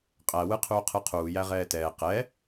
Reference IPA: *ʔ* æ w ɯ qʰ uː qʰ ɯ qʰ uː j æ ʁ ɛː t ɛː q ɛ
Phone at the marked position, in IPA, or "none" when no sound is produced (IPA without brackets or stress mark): qʼ